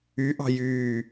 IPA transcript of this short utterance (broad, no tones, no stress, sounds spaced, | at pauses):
y ʔ ɑ̤ j yː